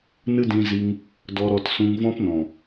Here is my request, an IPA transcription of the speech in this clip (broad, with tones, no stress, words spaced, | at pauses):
nɨ˦dĩ˧zi˧ŋ | dɔ˧ɾɔ˧tsũ˧ŋ vɔ̃˦pnɔ̃˨